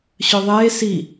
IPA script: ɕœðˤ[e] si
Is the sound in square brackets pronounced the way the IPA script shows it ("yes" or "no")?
no